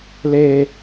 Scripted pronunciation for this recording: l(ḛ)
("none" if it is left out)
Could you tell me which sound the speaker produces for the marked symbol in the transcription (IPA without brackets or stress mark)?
e